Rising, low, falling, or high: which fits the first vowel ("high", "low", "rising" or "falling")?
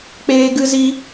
high